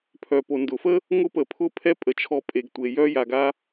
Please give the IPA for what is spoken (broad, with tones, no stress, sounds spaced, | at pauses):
pʰ œ˩ p o˩ n d ʊ˩ f ə˥ | ŋ ʊ˧ p ə˩ pʰ ʊ˧ pʰ ɛ˥ pʼ ə˩ t͡ʃʰ ɔ˧ pʼ e˩ ɡ tʷ e˩ j œ˥ j a˩ ɡ a˥